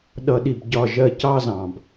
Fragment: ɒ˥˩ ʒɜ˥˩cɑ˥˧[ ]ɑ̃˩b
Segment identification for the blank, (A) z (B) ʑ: A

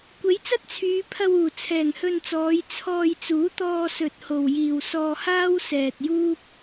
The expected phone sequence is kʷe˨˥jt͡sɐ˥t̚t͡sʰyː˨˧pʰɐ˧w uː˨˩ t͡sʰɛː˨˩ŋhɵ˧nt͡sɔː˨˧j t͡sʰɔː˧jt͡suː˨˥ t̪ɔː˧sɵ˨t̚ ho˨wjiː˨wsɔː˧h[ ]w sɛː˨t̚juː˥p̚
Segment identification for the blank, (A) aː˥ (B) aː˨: A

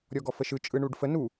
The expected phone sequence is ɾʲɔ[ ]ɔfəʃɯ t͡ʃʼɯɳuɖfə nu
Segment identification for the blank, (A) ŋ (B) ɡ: B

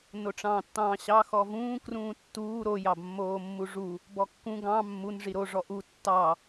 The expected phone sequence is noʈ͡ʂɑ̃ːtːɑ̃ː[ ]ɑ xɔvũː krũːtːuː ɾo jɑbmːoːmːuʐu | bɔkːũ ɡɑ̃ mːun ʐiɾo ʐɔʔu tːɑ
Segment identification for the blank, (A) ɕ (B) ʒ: A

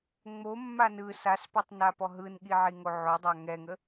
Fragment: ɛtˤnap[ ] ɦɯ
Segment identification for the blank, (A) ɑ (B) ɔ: B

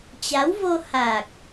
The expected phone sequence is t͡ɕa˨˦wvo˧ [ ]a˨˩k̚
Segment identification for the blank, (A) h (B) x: A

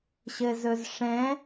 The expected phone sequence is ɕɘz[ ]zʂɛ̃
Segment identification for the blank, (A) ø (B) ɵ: B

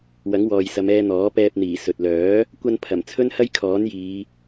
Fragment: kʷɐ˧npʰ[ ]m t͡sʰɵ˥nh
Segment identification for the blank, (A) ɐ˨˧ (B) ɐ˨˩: B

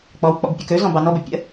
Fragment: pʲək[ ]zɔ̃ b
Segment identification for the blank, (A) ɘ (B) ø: B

